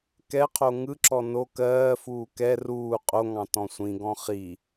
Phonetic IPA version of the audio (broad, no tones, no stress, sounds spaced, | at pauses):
k ɛ qʰ o ŋ ɯ ǁ ɔ n o k ɜː f uː k ɛ r uː qʼ o ŋ ɑ̃ t ɔ̃ sʷ ĩ ɡ ɔ̃ χ i